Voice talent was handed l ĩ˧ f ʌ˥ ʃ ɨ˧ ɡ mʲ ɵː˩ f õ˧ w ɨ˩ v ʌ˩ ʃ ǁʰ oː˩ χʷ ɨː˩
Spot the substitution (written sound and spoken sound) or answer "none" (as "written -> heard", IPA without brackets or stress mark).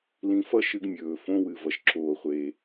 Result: ɨː˩ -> eː˩